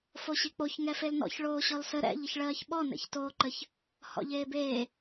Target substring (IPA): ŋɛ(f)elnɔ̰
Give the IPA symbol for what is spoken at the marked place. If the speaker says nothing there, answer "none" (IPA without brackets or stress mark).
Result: f